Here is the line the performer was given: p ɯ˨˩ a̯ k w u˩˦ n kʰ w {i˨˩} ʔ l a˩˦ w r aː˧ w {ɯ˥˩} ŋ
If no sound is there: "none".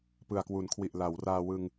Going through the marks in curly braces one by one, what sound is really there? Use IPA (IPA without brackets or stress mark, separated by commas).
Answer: i˨˩, ɯ˧